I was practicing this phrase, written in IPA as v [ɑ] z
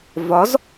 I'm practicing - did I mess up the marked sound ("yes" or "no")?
yes